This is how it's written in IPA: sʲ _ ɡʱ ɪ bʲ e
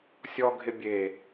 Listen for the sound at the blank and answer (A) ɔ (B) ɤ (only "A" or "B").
A